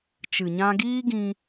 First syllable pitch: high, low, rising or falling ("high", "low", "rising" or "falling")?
low